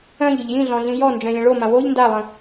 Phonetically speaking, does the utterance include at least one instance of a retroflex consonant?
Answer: yes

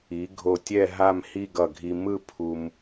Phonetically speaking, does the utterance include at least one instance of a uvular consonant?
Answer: no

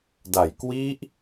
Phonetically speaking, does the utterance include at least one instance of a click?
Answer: no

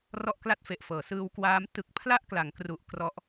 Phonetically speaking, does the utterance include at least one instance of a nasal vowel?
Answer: no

